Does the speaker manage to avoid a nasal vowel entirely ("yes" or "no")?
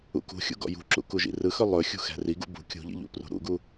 yes